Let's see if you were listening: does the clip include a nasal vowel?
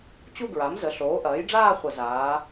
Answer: no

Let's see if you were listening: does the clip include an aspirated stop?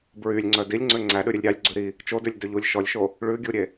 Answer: no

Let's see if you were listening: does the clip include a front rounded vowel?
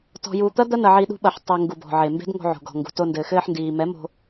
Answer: no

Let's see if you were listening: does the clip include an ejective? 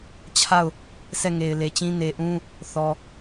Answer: no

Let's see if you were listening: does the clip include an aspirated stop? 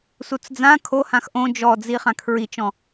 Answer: yes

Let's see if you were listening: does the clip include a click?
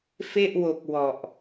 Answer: no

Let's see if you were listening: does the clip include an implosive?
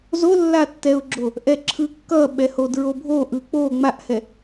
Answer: yes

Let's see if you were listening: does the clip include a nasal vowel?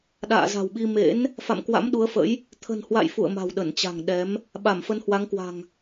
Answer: no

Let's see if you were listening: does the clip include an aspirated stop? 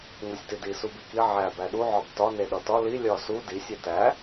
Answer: no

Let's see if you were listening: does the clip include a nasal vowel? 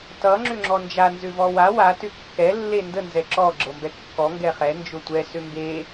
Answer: no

